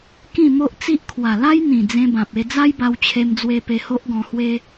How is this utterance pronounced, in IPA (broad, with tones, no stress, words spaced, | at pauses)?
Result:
kĩ˥˧mo˦ʔ t͡si˦ʔ kʰwa˨˩la˦jn̪ĩ˨˩ d͡zẽ˧bã˨p̚e˧ d͡za˦jba˧wt͡ɕʰe˧md͡zwe˧ pe˧ho˦ʔɡɔ̃˧hwe˦